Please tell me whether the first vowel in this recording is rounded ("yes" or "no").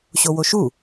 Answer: yes